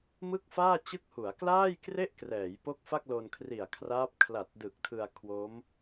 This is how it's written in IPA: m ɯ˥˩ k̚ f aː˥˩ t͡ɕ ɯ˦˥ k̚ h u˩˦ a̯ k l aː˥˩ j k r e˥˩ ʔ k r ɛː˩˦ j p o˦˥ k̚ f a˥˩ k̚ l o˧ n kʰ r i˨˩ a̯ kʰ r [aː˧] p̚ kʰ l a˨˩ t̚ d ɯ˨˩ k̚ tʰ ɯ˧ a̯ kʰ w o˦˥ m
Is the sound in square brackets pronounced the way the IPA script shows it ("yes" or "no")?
no